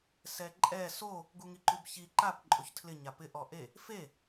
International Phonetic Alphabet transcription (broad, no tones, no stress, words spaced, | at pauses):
sɛǃʼɛ so | ɡuŋiǃubçi ǃap ǃʼoçtʰlɪ ɲapɪ ʔɔʔe | fe